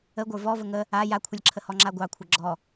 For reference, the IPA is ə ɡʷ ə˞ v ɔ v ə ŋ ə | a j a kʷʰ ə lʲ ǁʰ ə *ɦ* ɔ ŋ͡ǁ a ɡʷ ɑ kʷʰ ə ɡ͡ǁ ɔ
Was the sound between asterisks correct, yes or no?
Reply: no